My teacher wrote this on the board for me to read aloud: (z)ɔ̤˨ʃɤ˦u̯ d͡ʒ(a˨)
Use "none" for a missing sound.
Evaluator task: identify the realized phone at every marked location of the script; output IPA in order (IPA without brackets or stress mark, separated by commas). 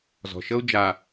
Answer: z, a˨